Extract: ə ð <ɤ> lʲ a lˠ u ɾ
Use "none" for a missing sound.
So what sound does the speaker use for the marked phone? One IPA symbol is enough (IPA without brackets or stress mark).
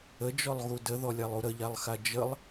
ɔ